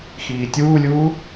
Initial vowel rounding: unrounded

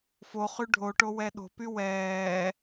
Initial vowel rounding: rounded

